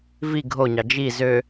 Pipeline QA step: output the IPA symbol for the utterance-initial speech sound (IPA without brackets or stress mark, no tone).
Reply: v